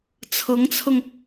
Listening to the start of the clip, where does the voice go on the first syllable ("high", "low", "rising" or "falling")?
rising